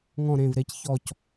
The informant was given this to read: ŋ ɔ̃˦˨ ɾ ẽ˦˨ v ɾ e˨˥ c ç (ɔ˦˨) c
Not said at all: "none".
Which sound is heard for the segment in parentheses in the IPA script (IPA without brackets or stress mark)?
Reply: ɔ˦˨